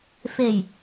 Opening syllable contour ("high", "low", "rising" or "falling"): low